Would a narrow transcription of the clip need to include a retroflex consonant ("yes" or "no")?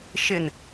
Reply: no